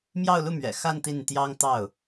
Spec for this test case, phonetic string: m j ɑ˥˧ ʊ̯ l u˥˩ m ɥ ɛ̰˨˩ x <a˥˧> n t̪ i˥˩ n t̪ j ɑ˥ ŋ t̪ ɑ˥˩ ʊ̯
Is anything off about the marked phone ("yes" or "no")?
no